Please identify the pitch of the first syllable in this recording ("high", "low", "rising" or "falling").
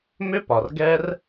high